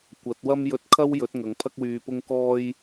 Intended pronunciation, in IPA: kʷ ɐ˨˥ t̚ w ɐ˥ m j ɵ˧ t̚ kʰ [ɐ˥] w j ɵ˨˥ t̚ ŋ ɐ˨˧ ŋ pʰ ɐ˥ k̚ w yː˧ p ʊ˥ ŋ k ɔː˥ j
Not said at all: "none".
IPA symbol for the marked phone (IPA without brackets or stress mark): ɐ˥